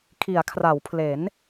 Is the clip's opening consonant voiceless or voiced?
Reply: voiceless